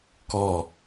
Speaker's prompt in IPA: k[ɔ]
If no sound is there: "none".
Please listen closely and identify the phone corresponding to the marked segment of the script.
ɔ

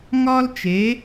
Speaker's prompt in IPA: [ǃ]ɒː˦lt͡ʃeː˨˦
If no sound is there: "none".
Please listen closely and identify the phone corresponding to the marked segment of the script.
ŋ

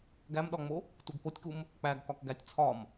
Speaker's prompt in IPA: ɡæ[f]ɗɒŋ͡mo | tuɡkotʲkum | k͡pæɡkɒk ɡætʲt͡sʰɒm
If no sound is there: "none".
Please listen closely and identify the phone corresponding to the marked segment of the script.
m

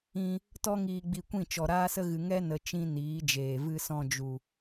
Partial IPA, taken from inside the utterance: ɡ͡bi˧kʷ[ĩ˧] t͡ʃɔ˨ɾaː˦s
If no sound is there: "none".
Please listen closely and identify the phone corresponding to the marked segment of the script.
ĩ˦˨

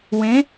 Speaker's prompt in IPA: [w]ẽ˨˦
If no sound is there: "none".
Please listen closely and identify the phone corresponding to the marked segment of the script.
w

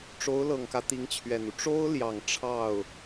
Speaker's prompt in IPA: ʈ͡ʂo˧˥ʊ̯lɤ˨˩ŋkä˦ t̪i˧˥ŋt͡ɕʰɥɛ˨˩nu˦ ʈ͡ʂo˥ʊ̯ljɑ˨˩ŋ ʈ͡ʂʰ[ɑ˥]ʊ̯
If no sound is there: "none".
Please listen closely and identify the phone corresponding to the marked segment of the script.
ɑ˥˩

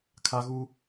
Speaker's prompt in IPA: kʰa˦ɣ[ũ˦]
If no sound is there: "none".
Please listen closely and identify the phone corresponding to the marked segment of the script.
u˦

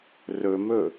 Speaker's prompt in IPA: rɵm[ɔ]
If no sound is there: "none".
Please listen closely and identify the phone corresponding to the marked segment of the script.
ɵ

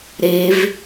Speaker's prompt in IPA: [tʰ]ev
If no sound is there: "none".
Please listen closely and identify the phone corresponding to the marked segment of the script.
ɾ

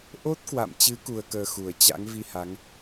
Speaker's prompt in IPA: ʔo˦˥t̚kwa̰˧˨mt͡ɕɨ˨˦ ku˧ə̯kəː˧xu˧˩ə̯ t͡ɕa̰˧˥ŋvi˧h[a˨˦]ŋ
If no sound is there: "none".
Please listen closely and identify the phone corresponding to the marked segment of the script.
a˨˦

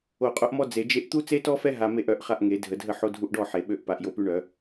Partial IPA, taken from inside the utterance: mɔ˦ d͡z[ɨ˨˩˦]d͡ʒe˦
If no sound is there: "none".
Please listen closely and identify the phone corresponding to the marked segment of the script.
e˨˩˦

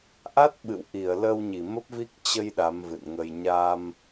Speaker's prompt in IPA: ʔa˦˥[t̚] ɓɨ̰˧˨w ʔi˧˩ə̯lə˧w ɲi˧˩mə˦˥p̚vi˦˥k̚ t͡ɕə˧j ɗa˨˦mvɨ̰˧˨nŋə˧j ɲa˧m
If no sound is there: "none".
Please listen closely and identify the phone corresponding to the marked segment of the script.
t̚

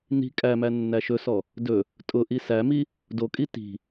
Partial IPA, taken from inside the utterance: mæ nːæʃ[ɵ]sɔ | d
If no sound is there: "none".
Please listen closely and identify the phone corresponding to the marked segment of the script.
ɵ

